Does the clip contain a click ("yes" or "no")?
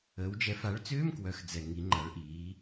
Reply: yes